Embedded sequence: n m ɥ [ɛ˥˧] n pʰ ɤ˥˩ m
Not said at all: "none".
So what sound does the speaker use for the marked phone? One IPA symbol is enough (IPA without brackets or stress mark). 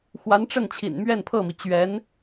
ɛ˥˧